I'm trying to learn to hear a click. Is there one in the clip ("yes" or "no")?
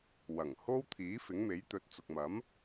no